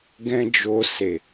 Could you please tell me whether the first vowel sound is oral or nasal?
nasal